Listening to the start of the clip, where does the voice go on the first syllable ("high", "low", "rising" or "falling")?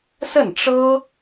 falling